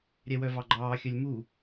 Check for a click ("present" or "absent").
present